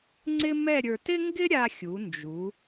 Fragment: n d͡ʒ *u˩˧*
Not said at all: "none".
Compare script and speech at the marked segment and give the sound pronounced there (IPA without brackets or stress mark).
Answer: u˩˧